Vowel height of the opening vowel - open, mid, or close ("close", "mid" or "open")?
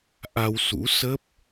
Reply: open